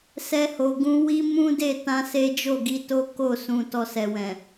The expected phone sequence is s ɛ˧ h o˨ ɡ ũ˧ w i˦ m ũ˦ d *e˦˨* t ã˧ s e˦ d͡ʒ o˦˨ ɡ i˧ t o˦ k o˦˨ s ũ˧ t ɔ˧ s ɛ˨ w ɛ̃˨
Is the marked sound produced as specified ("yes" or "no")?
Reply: yes